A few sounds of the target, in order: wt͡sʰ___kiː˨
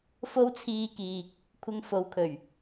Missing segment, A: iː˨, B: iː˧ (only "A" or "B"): B